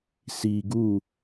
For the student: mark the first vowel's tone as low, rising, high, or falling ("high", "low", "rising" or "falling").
low